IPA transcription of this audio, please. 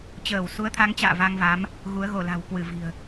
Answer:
t͡ɕəː˧˩w su˨˦ə̯t̪ʰa˨˦ŋt͡ɕa̰ː˧˨ va˧ŋva˨˦m | ɣu˨˦ə̯ɣo˧˩la̤˨˩w kwɨ˧˩vi̤˨˩ə̯

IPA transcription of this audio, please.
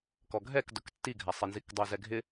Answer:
kɔɡʱɛkdʊk tːiɡʱasˤenzik dˤozɛɡʱɪ

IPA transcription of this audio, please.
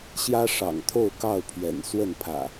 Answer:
ɕjä˦ʂɑ̰˨˩ŋt̪ʰo˥˨ʊ̯ kɑ˥˨ʊ̯pʰɥɛ̰˨˩n swə˥˨npʰä̰˨˩

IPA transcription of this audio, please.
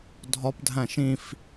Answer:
dʱɒpdʱæ̃ ʃĩf

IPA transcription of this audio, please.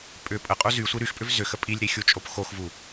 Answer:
pʼʏ pʼəqʼu zysʷi ɾyxpʼʏv zʏxə pʼilʲɾixʲut͡ʃʼop xoxvu

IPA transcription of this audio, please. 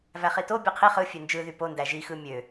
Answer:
væχito bʲɯqʰi χɯ fʲønd͡ʒɯ ðypo ndæʒi xɯmʲø

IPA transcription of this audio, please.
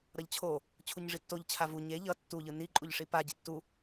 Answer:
ɾʌʎt͡ɕʰo | t͡ɕʰuɲʐitːoʎ t͡ɕʰavu ɲe ʎʌ tːu ʎɯni ǃʼuʎʂipa ɟitːu

